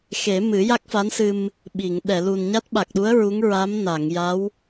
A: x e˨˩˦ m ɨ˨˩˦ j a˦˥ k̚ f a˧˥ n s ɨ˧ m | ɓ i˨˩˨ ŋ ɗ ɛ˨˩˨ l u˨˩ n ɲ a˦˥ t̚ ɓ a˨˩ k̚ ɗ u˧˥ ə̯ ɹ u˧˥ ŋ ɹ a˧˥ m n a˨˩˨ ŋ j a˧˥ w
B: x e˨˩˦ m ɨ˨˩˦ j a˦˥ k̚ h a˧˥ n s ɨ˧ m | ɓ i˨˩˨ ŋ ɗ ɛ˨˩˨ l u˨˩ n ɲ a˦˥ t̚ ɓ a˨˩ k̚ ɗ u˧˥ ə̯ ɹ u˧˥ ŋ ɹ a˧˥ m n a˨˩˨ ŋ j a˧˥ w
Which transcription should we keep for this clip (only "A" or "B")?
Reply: A